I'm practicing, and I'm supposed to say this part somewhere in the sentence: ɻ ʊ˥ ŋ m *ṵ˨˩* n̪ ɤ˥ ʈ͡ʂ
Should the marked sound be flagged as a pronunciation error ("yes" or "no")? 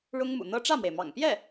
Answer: no